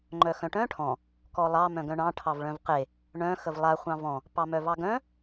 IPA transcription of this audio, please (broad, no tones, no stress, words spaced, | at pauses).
ŋ͡ǃœxœ̃ʈœ̃ ʈʰɔ̃ | kɔlˠɑ mœ̃ɡœ̃ɳɑ̃ ʈʰɑvɭœ̃vqe | ɳœ̃ xəvlˠa χʷɑ̃vɔ̃ | pɑmœvɑɡœ̃